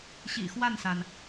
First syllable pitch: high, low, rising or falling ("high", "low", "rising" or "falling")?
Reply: low